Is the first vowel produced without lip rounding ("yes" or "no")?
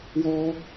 no